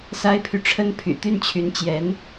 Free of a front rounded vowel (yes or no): no